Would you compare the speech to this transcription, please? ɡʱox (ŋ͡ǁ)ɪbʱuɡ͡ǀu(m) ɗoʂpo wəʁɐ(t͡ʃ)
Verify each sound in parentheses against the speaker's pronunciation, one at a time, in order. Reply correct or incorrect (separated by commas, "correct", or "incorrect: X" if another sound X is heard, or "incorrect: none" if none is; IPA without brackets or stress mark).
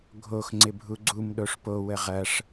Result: incorrect: ŋ͡ǀ, correct, incorrect: ʂ